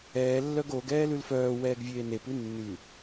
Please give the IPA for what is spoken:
ɛː lː œ ɡ o ɡ ɛː l ʉ l f œː w ɛː ɡ vʲ eː n e p ʉ nː ʉ

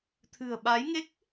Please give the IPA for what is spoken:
t̪ʰ ɨ̤˨˩ ə̯ ɓ a˨˦ j ŋ e˦˥ k̚

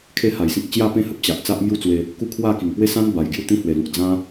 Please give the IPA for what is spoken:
kʰ e˦ h a˨˩ j s ĩ˦ k̚ t͡ɕ j a˥˧ p ẽ˥˧ h ə˦ p̚ t͡ɕ a˨ ʔ t͡s a˦ ʔ m j u˥˧ t͡s w e˧ | k u˦ kʰ w a˥˧ k i˨˩ ŋ p w e˥˧ s ã˦ n b a˨˩ j ɡ j u˦ t̪ ĩ˦ h w e˨˩ l u˨ k̚ d͡z ã˦

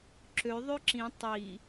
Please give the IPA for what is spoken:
ǁ ø ðˤ ø ǁ ĩ tˤ i

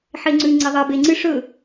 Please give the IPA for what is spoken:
ħ e ŋ͡ǀ ʉ ŋ͡ǀ e ðˤ ɐ b e ŋ͡ǀ ɨ ʂ ɵ

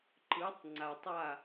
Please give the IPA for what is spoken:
ǃ ɯ˨˥ tˤ ŋ͡ǀ a˨ tˤ a˥˨

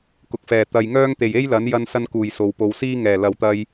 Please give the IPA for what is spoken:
k ʊ˨ k̚ f ɛː˨˩ t̪ ɐ˨ j ŋ œː˧ ŋ t̪ e˨˩ j e˥ j l ɐ˨˥ n j ɐ˧ n s ɐ˧ n k uː˨˩ j s o˨˧ w p o˧ w s iː˧ ŋ ɛː˨˩ l ɐ˨ w t̪ ɐ˧ j

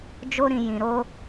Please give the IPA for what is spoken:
d͡ʒ o˦ ɾ ĩ˧ j ĩ˧ ɾ o˦

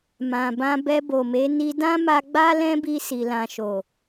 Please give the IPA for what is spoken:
m ã˨ b ã˧ b ɛ˧ b o˨ m e˨˦ n i˧ d ã˦ m a˧ ɡ͡b a˦ l ɛ̃˦ b i˧ s i˨ l ã˨ ʃ o˨

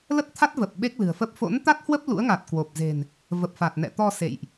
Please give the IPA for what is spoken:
l ə˦˥ t̚ t̪ʰ a˦˥ t̚ v ə˨˩ p̚ ɓ e˦˥ k̚ l ɨ̤˨˩ ə̯ f ə˦˥ p̚ f o̰˧˥ n t̪ a˦˥ t̚ h w ə˦˥ p̚ l ṵ˧˥ ə̯ ŋ a˨˩ t̚ k w o˨˩ p̚ z e̤˨˩ n | v ə˨˩ p̚ f a˨˩ t̚ n ɛ̰˧˨ t̪ ɔ˧ s ḛ˧˨ j ʔ

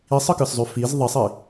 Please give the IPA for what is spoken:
i sˤ ɯ k ɯ s zˤ ʉ f i z ðˤ i sˤ i

